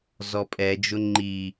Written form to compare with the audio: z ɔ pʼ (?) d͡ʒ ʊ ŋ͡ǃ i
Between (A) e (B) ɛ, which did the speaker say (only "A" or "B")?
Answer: B